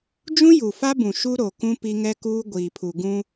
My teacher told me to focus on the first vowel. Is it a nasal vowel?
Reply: yes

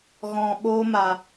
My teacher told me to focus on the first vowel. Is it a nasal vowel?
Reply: yes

